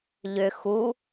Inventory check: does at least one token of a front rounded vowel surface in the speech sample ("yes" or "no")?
yes